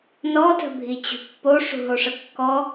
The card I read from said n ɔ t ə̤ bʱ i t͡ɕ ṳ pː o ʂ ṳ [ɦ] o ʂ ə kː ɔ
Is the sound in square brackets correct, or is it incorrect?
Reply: correct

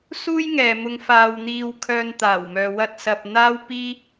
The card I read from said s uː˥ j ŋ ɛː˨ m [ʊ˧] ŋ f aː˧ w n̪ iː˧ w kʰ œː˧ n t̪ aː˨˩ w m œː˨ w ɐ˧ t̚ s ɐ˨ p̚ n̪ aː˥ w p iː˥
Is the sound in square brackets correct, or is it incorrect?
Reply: correct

